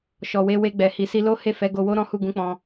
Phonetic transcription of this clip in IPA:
ʃ ɔ˨ w e˧ w e˧ ɡ͡b ɛ˨ h i˨ s i˧ l o˦ h e˦˨ f ɛ˨˦ ɡ o˧ w o˦ ɾ ɔ̃˦ h u˦˨ ɡ ũ˧ k͡p ɔ̃˧

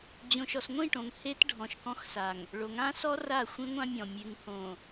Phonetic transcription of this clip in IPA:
d͡ʑ õ˨ ʃ ɔ˨ s ŋʷ ĩ˦˨ ʈ õ˨ ŋ h e˦ t ɖʱ ɔ̃˨ ʃ k ɔ̃˦ x s a˨ ŋ | ɭ o˨ ŋ ã˦ s ɔ˦ r a˦˨ xʷ ĩ˦ ŋʷ ã˦ mʲ ɔ̃˨ mʲ ʉ˨ ŋ h õ˨

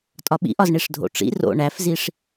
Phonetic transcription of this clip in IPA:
tʼ ɒ ɓ ḭ ʔ ɒ z ɳ i ʂ dʱ o̰ ʈ͡ʂ ḭ r o̰ ɳ æ f z i ʂ

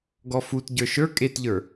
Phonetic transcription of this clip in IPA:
ɡ ɔ f u t ɟ ə˞ ʃ ə˞ kʼ e t ʎ ə˞

